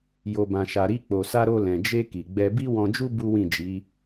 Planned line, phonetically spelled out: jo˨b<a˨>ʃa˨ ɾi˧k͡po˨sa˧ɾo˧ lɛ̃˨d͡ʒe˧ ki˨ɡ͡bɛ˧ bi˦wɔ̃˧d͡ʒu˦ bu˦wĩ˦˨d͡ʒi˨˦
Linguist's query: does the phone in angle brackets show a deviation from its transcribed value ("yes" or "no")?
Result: yes